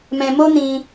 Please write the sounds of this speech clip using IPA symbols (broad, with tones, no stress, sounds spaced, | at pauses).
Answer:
m ɛ̃˧ m o˦ n ĩ˧